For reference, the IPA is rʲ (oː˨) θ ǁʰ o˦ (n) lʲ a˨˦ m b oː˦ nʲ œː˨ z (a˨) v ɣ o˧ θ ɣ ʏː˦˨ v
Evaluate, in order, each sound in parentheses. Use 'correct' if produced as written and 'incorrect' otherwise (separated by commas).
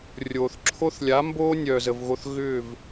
correct, incorrect, incorrect